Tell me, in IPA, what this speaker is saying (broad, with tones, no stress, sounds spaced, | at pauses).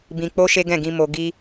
b ĩ˧ k͡p o˦ ʃ e˦ ɡ ɛ̃˦˨ ɡ ĩ˧ m o˧ ɡ i˦